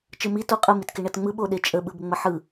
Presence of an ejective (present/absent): present